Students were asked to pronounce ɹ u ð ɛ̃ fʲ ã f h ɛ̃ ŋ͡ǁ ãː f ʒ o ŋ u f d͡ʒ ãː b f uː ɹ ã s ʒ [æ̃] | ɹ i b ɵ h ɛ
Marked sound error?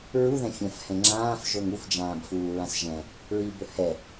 yes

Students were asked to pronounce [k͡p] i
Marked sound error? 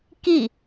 yes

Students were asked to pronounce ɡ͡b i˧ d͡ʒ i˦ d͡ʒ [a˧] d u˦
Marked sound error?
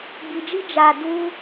no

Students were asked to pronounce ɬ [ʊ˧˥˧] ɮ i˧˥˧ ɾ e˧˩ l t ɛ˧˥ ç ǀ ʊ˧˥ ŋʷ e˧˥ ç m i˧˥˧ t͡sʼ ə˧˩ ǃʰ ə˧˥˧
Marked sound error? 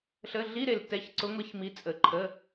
yes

